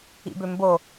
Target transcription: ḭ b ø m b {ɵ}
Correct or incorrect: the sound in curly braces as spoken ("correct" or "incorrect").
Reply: incorrect